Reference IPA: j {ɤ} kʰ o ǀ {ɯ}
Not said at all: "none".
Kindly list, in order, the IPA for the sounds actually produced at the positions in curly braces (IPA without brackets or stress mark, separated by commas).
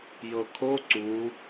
ɤ, u